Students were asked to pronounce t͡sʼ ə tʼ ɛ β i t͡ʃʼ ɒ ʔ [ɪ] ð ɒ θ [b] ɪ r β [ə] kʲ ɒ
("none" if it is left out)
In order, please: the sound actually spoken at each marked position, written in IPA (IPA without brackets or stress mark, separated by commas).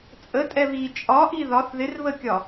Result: i, ð, ə